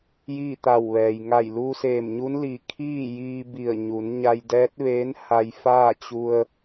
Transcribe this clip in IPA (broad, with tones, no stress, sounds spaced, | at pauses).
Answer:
j iː˥˨ t̪ a˧˩ w ʋ ɛː˩ j ŋ a˧˩ j l uː˧ s eː˧˩ m ɲ u˧˥ n l i˧˩ kʰ iː˥˨ j iː˧ b i˧˩ ə̯ ɲ u˩˧ n ɲ a˧ j d ɛː˧˥ t̚ ʋ eː˧˥ n h a˧ j f aː˥˨ t͡ɕ u˧ ə̯